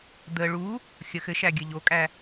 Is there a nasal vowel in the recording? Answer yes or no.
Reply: no